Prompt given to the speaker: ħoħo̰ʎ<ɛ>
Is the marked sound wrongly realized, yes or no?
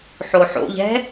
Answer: yes